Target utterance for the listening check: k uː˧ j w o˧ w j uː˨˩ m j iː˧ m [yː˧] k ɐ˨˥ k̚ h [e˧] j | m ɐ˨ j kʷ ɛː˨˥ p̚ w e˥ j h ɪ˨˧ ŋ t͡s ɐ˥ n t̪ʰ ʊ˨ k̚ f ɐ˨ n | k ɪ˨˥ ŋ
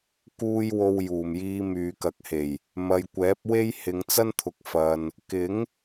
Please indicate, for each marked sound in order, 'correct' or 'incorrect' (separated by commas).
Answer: incorrect, incorrect